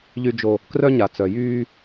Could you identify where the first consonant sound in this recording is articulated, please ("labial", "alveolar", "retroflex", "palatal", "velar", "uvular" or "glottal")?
palatal